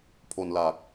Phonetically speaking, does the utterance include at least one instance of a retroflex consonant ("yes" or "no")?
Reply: no